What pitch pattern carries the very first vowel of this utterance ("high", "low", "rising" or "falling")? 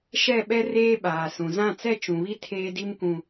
falling